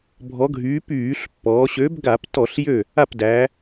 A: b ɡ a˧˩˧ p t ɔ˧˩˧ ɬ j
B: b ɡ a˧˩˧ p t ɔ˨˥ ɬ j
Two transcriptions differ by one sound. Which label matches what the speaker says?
A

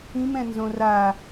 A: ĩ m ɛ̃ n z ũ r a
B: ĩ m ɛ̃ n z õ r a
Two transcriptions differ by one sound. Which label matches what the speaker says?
B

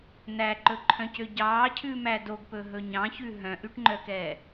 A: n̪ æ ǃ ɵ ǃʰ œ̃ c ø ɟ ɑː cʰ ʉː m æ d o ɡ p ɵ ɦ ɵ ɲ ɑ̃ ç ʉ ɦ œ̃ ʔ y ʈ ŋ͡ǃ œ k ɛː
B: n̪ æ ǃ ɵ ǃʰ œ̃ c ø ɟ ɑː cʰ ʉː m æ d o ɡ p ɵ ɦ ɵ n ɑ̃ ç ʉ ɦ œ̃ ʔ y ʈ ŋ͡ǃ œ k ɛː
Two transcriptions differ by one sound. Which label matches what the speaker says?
A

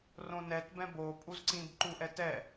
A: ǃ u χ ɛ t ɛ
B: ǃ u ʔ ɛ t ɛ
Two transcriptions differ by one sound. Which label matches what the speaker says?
B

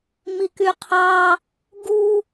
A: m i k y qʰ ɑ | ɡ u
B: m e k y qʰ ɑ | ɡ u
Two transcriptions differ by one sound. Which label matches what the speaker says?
A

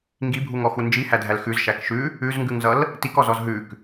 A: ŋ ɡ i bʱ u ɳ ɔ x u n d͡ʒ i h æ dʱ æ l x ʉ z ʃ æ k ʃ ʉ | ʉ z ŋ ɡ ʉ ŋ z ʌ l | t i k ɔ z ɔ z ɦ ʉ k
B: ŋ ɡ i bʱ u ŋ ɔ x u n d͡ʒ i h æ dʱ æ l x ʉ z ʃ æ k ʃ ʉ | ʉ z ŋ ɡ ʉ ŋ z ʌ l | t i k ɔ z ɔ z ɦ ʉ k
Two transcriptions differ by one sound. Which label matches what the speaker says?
B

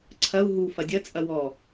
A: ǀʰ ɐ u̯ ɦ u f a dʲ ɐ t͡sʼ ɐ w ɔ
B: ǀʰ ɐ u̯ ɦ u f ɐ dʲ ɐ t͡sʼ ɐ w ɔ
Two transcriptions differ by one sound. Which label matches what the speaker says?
B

